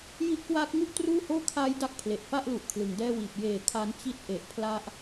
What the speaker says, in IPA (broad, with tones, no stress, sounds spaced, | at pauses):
j i˦˥ ʔ k w aː˦˥ k̚ ŋ u˥˩ ʔ t r uː˥˩ h oː˥˩ kʰ aː˦˥ j d a˦˥ k̚ pʰ l e˨˩ ʔ f a˥˩ ʔ l u˨˩ ʔ kʰ l ɯ˩˦ ŋ d ɛː˥˩ w iː˨˩ p̚ j eː˩˦ kʰ a˦˥ n t͡ɕ i˦˥ t̚ ʔ e˨˩ ʔ pʰ l a˦˥ ʔ